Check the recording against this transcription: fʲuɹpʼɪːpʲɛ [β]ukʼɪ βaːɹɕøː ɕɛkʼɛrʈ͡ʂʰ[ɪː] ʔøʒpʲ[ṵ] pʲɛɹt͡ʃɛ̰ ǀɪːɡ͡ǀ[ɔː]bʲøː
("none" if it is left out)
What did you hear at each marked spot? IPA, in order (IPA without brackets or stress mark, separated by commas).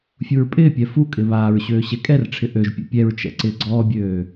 f, ɪ, ṵ, ɔː